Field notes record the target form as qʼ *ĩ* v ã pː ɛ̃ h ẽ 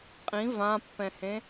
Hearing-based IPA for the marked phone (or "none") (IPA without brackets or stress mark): ĩ